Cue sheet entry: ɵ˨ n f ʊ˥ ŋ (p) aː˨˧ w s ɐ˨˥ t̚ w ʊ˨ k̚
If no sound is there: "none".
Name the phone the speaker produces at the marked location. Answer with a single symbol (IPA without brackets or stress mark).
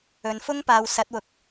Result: p